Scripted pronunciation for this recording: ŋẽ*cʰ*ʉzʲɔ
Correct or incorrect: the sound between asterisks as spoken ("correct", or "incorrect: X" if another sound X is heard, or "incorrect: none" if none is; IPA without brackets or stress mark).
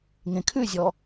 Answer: incorrect: kʰ